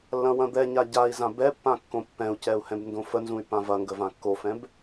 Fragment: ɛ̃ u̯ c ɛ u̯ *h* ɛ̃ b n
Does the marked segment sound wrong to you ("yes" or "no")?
no